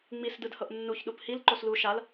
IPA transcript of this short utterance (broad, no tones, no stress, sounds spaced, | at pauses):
ŋ͡m i s d ɯ d h ɤ ʔ nː u ç ɗ u p h i l ǃ o s l u ʃ a l